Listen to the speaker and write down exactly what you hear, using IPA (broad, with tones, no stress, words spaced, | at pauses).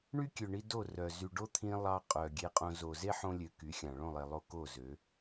ɳy˦kʲø˨ɳi˧ do˦˨ rœ˨ zy˨ɖo˦t̪ʰĩ˧ lˠɑ˧qʼœ˨ ɡʲe˧qʼõ˧ zo˨ze˦ħõ˧lʲø˨ ky˨˦xʲɑ̃˨ ɭõ˦˨lˠe˨lˠo˧ ko˦˨zø˨˦